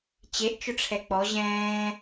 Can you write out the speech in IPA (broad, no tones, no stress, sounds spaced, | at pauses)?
t͡ɕ e ʔ t͡ʃ ʊ ʈ͡ʂʰ ɛ k͡p ɔ ʑ ɛ̃ː